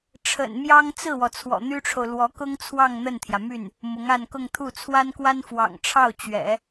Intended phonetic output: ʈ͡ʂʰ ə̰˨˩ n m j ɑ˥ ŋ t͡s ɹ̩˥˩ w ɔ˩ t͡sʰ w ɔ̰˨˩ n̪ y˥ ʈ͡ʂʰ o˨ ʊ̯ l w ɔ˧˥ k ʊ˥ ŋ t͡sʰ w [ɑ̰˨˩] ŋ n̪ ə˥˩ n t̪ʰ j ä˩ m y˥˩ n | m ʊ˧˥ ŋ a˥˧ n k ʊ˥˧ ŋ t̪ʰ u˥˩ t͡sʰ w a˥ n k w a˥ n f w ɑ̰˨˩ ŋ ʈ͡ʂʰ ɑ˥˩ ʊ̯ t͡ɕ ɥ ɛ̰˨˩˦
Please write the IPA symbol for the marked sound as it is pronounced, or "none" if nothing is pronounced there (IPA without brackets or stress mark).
ɑ˥˧